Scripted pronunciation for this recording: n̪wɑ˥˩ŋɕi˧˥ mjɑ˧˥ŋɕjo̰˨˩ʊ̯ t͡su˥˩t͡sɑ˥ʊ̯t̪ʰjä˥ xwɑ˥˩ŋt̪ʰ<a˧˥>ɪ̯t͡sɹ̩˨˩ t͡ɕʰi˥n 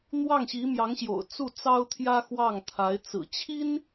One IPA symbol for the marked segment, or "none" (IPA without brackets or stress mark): a˧˥